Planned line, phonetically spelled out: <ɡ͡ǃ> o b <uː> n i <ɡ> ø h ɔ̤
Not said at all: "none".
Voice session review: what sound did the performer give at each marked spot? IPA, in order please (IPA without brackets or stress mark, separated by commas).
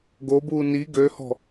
ɡ, uː, ɡ